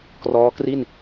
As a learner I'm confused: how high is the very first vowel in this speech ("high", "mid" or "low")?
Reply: mid